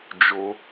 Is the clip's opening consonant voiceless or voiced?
voiced